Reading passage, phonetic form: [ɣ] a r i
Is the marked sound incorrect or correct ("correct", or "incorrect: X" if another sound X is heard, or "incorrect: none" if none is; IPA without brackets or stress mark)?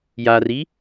incorrect: j